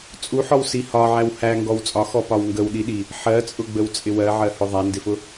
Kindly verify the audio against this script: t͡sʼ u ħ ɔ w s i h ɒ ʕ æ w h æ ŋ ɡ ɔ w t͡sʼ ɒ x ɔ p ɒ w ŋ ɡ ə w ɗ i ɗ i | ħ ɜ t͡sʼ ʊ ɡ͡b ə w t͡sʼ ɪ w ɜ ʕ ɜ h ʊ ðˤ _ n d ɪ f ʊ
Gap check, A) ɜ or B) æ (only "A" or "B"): B